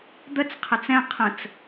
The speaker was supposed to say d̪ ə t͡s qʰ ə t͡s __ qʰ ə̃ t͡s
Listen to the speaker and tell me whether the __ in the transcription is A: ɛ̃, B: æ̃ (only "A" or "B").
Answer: A